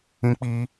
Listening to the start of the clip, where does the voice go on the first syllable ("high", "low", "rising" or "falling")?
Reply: high